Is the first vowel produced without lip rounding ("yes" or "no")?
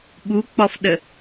no